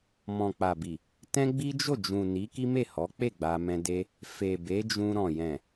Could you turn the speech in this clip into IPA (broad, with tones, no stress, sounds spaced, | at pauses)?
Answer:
m ɔ̃˨ k͡p a˨ b i˨ | t ɛ̃˦ ɡ͡b i˦ d͡ʒ o˦˨ d͡ʒ ũ˨ n i˨˦ k i˦ m e˦˨ h ɔ˨˦ k͡p e˦˨ ɡ͡b a˧ m ɛ̃˧ d e˦ | f e˨ b e˨˦ d͡ʒ ũ˧ ɾ ɔ̃˨ j ɛ̃˨